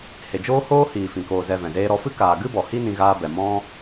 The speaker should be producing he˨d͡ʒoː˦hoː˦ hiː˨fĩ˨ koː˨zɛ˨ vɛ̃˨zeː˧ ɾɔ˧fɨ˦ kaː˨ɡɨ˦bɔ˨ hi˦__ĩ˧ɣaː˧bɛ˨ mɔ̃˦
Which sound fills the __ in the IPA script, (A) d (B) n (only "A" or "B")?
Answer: B